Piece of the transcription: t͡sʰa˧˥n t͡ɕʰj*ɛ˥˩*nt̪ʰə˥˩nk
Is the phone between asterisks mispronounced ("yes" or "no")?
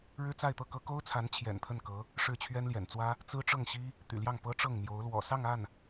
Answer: yes